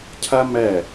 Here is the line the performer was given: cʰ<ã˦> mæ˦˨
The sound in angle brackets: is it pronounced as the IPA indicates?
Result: no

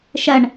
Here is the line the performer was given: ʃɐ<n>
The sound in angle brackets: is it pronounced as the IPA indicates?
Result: no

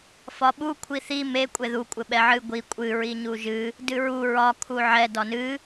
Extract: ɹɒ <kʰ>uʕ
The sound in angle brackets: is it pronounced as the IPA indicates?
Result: yes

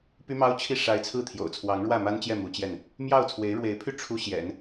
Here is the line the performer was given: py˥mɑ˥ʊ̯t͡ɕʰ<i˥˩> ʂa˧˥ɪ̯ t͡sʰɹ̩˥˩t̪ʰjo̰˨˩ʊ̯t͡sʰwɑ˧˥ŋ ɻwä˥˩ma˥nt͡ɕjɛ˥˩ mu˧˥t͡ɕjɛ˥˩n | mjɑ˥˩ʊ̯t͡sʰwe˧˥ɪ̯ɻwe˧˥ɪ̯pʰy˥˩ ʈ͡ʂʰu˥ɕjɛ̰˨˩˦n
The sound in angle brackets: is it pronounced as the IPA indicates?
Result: yes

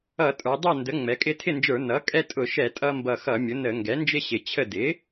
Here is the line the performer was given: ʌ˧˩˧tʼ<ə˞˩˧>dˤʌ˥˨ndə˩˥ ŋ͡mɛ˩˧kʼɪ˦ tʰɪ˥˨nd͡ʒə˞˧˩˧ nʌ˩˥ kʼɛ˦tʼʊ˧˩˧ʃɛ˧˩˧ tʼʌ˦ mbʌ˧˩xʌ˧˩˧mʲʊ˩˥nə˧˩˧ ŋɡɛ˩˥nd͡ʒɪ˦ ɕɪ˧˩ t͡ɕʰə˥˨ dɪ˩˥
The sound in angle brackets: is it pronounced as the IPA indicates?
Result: yes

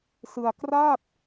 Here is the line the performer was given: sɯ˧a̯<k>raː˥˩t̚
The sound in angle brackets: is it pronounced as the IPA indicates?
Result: yes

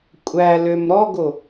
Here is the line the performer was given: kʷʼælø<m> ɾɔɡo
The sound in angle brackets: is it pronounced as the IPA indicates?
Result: yes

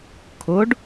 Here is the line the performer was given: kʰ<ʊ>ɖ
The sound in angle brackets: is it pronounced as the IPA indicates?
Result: yes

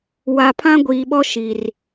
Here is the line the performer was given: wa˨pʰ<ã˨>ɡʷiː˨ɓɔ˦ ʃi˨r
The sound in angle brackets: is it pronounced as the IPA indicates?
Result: no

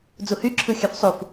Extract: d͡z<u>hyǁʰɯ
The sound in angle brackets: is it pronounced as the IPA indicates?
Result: yes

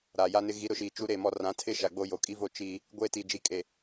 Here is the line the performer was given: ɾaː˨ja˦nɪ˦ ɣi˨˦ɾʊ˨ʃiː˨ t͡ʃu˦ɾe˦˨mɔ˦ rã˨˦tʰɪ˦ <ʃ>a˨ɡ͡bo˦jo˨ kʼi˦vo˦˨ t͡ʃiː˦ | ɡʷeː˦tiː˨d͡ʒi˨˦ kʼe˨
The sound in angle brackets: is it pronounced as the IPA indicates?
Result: yes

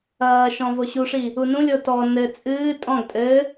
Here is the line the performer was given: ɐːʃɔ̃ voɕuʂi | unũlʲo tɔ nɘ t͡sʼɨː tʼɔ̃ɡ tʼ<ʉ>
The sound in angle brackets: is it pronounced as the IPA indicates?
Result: no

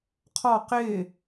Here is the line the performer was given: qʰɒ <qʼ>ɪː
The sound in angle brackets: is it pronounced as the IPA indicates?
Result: no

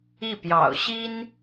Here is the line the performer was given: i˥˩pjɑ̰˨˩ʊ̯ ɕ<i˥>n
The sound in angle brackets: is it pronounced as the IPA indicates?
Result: yes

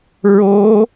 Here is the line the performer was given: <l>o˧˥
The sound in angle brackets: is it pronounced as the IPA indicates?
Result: no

